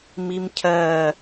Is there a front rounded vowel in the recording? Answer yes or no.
no